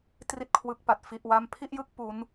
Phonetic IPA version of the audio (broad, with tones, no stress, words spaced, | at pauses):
tri˥˩t̚kʰwɯ˦˥k̚pa˨˩t̚ fi˥˩ʔwa˥˩m pʰi˥˩ʔjɯ˥˩k̚ pu˦˥n